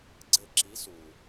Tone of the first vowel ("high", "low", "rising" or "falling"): falling